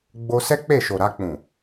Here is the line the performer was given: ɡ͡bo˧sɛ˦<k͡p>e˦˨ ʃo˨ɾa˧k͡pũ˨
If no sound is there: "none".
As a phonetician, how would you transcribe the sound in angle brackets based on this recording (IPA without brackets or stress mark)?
k͡p